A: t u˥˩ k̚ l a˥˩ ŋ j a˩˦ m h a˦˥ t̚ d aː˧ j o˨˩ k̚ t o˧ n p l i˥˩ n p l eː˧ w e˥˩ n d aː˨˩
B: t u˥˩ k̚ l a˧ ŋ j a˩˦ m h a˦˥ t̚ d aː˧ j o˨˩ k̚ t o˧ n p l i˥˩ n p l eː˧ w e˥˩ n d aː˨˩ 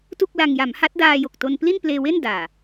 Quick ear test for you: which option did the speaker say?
B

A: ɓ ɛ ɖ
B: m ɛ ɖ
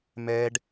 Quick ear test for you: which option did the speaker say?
B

